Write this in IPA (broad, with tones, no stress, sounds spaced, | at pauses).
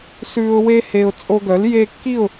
s ʉː˧ ʊ̯ w e˦ h e˧ ʊ̯ t͡sʼ o˧ ɡ œ˨˦ l j e˧ kː i˦˨ ʊ̯